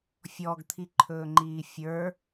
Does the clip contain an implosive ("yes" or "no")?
no